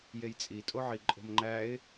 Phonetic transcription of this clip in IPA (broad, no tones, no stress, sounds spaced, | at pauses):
j e j t͡sʼ i tʼ o ʕ i ǃʼ o̤ m ŋ͡ǃ æ ɪ̯